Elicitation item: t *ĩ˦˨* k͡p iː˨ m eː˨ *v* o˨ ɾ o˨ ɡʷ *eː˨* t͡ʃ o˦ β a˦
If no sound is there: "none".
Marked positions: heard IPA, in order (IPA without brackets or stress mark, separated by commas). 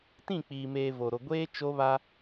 ĩ˦˨, v, eː˦